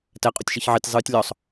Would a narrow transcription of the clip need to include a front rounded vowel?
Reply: no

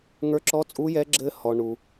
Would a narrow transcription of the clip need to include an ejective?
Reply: yes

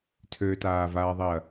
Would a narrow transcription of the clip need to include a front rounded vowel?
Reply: yes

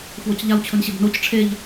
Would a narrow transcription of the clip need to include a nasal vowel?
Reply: no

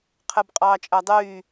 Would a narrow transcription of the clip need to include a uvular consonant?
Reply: yes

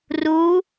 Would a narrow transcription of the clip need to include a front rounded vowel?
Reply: no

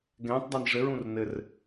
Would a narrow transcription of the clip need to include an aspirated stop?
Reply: no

